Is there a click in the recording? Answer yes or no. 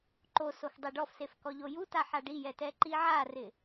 yes